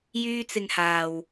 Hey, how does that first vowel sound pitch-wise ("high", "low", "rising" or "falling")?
high